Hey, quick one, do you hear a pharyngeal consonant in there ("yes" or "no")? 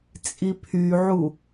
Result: yes